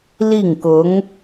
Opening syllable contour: falling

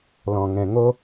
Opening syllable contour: low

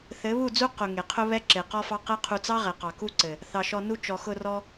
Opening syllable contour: rising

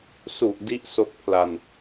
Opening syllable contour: low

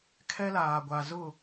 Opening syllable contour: high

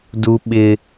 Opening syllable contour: high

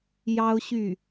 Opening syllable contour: high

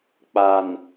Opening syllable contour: low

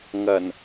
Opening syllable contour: low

